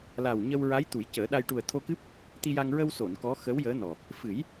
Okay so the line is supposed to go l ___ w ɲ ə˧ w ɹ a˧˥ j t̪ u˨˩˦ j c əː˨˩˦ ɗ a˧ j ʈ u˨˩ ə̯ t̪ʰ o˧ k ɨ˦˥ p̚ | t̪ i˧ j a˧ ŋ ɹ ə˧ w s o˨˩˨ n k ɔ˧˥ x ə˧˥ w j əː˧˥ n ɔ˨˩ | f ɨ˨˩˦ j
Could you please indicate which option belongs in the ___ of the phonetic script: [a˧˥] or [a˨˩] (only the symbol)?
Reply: a˨˩